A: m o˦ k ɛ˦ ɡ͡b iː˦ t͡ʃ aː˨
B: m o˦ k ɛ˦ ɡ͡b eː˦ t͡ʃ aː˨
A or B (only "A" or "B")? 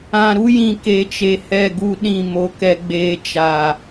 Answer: B